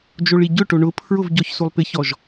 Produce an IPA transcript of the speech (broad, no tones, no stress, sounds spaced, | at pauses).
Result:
d͡ʒ o ɭ i ɟ ʊ ʈ o ɳ ʊ pʰ ɹ ʊ v ɟ ɔ ç s u lˠ p ɪ ç ɔ ʒ